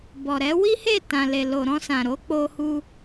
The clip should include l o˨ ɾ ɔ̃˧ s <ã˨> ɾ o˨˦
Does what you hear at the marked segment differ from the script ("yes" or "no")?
no